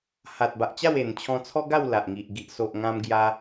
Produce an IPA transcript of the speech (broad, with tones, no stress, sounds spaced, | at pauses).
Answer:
h a˨ t̚ b a˨ ʔ t͡ɕ a˥˧ w e˨˩ n t͡ɕʰ ɔ̃˧ t͡sʰ ɔ˦ ɡ a˥˧ w l a˨ ʔ ŋ i˨ ʔ ɡ i˨ ʔ s o˨ ʔ ŋ ã˧ m ɡ j a˧